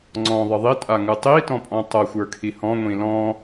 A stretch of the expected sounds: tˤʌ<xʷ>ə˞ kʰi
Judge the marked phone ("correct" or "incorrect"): correct